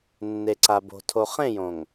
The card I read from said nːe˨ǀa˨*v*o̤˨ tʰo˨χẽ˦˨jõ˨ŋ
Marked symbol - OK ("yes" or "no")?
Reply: no